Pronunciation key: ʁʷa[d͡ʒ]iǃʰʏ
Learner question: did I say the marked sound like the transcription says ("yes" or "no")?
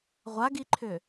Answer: no